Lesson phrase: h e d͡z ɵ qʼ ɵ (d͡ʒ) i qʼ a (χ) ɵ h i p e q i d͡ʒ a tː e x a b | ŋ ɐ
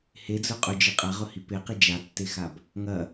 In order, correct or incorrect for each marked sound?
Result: correct, incorrect: ʁ

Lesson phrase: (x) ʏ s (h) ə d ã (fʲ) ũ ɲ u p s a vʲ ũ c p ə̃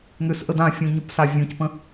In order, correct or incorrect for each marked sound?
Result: incorrect: ŋ, incorrect: ʔ, correct

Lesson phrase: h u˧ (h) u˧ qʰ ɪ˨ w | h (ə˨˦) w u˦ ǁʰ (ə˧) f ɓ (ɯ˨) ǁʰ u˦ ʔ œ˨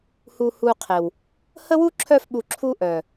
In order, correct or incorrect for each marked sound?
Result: correct, incorrect: ə˦, incorrect: œ˧, incorrect: u˨

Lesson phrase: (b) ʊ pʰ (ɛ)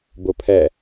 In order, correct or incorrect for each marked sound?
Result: correct, correct

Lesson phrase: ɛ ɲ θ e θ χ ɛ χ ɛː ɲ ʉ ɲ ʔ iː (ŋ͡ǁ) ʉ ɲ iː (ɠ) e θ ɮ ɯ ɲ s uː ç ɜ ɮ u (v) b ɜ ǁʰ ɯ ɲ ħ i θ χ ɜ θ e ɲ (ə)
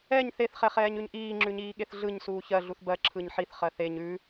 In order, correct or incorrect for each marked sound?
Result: correct, correct, incorrect: θ, incorrect: ʉ

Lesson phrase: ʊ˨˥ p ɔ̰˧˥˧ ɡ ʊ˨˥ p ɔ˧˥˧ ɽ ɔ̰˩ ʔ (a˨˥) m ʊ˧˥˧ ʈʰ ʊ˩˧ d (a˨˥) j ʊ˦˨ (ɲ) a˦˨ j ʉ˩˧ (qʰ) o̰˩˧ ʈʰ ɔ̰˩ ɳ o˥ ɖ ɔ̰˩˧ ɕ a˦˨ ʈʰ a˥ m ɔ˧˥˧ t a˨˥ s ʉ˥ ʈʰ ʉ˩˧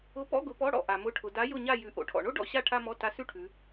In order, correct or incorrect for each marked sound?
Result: incorrect: a˩, correct, correct, incorrect: ʔ

